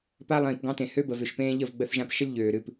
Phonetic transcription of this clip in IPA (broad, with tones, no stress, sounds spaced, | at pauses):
p a˦ lˠ ĩː˨ p ɡ ɑ̃˦ t ẽ˨ h ø˦ b ə˨ v ʏ˦˨ ʃ p ẽː˦ ʎ ə˦˨ v ɡ͡b ə˧ θ ʒ ã˧ p ʃ ə˦ lʲ ʎ øː˨ ɾ ɨ˦˨ p